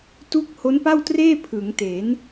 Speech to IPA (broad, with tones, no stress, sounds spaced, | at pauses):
t u˦˥ k̚ h o˦˥ n p a˥˩ w t r eː˥˩ pʰ ɯ˩˦ ŋ t e˩˦ n